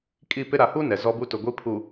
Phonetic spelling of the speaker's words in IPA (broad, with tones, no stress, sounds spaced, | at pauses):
kʼ i˦˨ p ɪ˦ ɾ a˨ h u˦ n ɛ˨ z ɔ˦ b u˦ t ʊ˨ ɡʷ i˦ pʰ u˨